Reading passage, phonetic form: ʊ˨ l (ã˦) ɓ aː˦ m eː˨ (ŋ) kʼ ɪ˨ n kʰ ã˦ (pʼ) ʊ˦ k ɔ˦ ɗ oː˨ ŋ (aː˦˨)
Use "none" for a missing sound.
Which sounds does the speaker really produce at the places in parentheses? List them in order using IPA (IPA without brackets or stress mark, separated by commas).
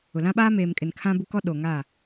ã˦, m, b, aː˦˨